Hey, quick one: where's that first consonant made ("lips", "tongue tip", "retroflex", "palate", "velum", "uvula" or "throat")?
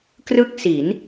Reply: velum